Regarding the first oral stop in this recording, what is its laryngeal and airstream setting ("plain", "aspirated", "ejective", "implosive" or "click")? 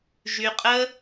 ejective